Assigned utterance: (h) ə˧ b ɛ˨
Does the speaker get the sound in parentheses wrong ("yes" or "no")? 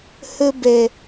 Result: no